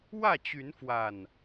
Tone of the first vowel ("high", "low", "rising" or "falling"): falling